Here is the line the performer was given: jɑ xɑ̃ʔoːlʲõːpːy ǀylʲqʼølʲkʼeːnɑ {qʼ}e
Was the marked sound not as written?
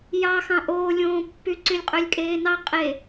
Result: no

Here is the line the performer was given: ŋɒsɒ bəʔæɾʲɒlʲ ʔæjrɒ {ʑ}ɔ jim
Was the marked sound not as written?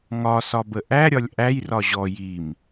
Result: no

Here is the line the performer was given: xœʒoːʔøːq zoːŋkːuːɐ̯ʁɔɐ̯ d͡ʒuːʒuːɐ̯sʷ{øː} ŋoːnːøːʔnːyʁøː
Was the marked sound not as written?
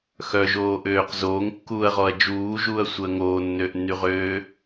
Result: yes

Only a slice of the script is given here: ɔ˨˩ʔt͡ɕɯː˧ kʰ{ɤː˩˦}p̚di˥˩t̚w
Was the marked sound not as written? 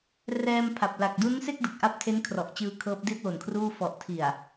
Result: yes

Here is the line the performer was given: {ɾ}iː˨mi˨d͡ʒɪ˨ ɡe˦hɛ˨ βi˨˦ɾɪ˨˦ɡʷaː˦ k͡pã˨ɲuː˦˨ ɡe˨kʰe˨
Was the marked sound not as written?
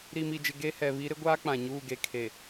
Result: no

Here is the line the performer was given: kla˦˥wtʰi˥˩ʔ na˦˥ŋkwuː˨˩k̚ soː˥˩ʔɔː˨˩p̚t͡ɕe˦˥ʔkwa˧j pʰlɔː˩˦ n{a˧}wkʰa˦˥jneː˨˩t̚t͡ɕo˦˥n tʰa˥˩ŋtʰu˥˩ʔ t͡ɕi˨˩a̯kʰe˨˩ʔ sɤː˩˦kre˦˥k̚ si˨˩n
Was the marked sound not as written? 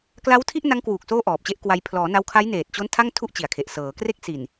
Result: no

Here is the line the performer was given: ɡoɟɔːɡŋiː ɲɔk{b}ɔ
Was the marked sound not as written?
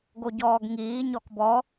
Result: no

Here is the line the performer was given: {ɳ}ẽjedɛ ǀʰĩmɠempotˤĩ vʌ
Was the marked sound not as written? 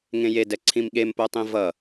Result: yes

